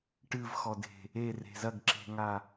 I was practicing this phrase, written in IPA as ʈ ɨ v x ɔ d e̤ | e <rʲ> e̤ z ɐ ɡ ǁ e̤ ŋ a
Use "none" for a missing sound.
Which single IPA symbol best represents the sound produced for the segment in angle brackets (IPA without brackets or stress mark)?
r